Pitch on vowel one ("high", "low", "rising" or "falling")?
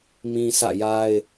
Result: low